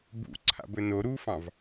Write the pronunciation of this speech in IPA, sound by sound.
b ṵ ǀʰ a̰ b ɵ n o ɾ u f ɑ̃ v

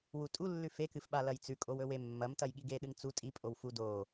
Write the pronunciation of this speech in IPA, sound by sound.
w u tʼ u lː ʉ f e k ɨ f ɓ a l ɐ j t͡s ʉ kʼ o w ɵ w e mː ɐ m t ɐ j ɠ i ɡ e ɗ ɨ ŋ t͡s u tʼ i pʼ o w f u d o

